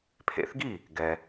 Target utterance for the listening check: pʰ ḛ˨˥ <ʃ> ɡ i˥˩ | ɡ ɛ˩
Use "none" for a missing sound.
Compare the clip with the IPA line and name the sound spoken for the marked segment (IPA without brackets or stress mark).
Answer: θ